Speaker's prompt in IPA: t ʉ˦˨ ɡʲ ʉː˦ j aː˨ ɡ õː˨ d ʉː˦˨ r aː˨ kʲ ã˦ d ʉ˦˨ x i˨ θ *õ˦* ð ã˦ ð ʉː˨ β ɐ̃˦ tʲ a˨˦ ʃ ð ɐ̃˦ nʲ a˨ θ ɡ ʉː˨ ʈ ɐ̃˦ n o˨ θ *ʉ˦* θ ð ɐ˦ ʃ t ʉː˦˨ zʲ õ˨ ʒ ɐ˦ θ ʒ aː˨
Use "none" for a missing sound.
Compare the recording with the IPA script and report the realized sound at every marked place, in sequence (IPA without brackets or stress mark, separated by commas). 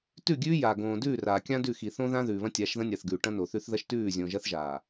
õ˦, ʉ˦